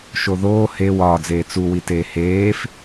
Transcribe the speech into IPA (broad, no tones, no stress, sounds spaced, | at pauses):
ʃ o ð oː h e w ɒː d͡z eː t͡s u w i t eː h eː f